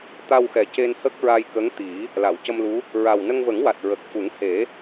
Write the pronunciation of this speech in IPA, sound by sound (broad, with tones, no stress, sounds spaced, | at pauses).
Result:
t̪ a˧ w x ɛ˨˩ c e˧ n h ə˦˥ k̚ ɹ a˧ j k ə˧˥ ŋ t̪ i˨˩˦ | l a˨˩˨ w c ə˧ m l u˧˥ | ɹ a˨˩ w n ə˧ ŋ v ə˨˩˦ ŋ w a˨˩ t̚ ɹ ə˨˩ k̚ f u˨˩˦ ŋ h e˨˩˦